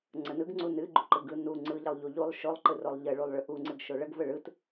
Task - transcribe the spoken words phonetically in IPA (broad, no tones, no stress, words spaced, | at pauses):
ŋ͡ǀənɯɡŋ͡ǀu nɨɡ͡ǃu ǃɯɡɯ nu ŋ͡ǀɯʎəlˠʎu ʎulˠ ʃolˠǃɯrolˠ ʎəɭulˠɭɯ ʔuŋ͡ǀɨɡʃo ɭəɡvə ɭɯt